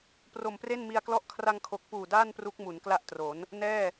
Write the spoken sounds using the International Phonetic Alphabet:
pro˨˩mpre˥˩nmi˧a̯klɔ˥˩ʔ kʰra˧ŋkʰo˨˩k̚puː˨˩ daː˥˩n pru˦˥k̚ mu˩˦nkla˥˩ʔtro˩˦n | nɛː˥˩

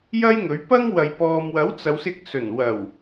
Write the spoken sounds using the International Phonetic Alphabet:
jɐ˥j ŋɵ˨˥ɥpɐ˥ŋwɐ˨j pɔː˨mwɐ˨˥w t͡sɐ˨˧wsɪ˧k̚ sɵ˨˩nwɐ˨˩w

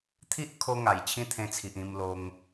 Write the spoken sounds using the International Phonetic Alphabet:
t̪ʰi˦ʔkʰo˧ŋa˨˩j t͡ɕʰĩ˦t̪ʰẽ˧t͡sʰi˨ʔ ĩ˧m lo˧ŋ

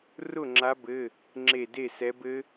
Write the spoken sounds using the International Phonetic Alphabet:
rʊ˥˨ŋ͡ǁa˨˦bɘ˩˧˩ | ŋ͡ǁe˧˩de˥˨ sɛ˨˦bɘ˦˥

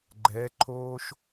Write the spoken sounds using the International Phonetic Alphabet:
ɡ͡ǃɛ˨˦ǃʰoː˦ʃ

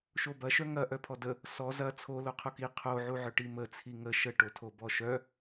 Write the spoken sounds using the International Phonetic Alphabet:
ʃobɐʃœ ŋɐ ʔœpʰɔdə | sɔ zɐ t͡sʰo loqʰoki qʰoʕuʕœ ʈimət͡sʰi ŋə ʃəʈotʰo bɔʃœ

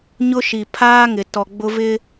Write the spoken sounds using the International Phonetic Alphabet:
ɲʊ˦ʃi˨ pʰaː˦ŋɪ˨ tɔ˨ɡ͡bʊ˦vɪ˦

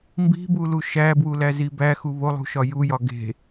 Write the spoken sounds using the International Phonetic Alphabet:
mbi̤bulu ʃæbwulæzi bæxu βolˠṳʃɒ jujɒ ɡe̤

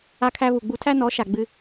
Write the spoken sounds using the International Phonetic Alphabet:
a˧kʰæ˧βu˨ɡ͡bu˧ tʰæ˦nɔ˨˦ʃa˨ ɡ͡bɨ˧

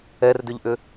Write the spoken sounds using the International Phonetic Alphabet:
ɛrdʏʎʔʏ

